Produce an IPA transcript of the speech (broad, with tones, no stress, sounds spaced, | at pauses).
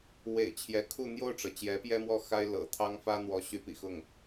w ḛ˨˩ ɪ̯ t͡ɕʰ j ɛ˧˥ kʰ u˥˧ n̪ j o˥˩ ʊ̯ ʈ͡ʂ ɤ˩ t͡ɕ j ɛ˧˥ p j ɛ˥ m w ɔ˥˩ x a˥ ɪ̯ l ɤ̰˨˩ t̪ʰ ɑ˥ ŋ f ä˥ n̪ w ɔ˧˥ ɕ y˧˥ p ḭ˨˩ x ʊ˥˩ ŋ